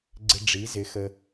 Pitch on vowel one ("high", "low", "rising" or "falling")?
low